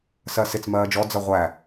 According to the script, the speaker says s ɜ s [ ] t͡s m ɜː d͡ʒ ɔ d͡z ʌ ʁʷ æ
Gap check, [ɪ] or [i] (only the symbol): ɪ